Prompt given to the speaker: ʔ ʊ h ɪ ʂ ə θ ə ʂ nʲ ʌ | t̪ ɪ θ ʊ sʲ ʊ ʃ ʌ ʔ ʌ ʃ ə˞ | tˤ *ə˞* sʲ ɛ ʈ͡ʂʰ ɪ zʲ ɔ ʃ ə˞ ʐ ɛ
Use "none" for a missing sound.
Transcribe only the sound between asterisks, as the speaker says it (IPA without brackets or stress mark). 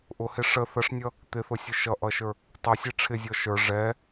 ʌ